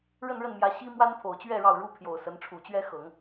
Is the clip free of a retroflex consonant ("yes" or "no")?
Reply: no